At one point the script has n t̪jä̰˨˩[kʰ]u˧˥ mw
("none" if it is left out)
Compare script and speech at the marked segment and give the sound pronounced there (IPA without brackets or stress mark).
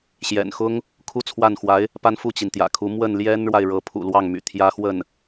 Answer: kʰ